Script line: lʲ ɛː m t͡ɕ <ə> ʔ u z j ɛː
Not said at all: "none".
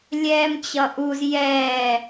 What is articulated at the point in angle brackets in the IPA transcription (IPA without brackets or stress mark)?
ʌ